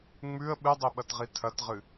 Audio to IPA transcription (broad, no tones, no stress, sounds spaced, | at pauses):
ŋ͡m ʉ ə̯ ɓ ɨ dˤ i ɓ ɐ t ʁ i tʰ ɐ t ʁ ɨ